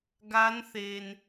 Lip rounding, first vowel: unrounded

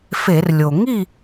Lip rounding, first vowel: unrounded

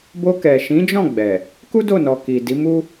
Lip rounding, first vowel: rounded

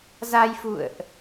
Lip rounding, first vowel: unrounded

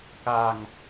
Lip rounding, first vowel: unrounded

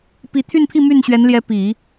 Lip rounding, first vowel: unrounded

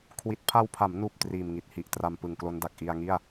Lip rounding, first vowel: unrounded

